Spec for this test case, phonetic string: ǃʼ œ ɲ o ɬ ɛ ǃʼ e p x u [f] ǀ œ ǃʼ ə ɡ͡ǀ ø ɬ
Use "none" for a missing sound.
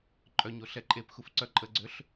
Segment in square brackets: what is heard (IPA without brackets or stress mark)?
f